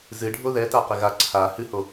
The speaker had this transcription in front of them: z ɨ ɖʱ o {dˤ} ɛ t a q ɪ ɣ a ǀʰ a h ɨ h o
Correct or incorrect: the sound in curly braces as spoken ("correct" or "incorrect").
incorrect